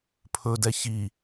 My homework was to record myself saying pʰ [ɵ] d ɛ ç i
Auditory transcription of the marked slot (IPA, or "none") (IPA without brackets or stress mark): ɵ